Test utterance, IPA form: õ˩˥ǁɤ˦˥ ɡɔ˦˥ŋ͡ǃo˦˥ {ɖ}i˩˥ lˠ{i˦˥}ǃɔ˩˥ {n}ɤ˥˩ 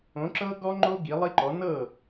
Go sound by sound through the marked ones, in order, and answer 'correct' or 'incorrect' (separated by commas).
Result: incorrect, correct, correct